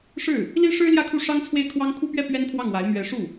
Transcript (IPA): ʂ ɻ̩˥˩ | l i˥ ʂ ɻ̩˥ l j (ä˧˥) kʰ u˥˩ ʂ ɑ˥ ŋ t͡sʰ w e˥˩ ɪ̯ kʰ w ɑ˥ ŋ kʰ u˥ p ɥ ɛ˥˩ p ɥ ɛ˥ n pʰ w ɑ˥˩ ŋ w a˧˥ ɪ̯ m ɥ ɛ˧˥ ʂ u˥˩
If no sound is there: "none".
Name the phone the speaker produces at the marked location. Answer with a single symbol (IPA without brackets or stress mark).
ä˥˧